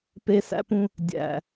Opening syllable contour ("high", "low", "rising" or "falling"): high